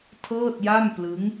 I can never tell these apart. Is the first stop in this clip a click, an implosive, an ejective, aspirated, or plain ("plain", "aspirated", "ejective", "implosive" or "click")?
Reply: aspirated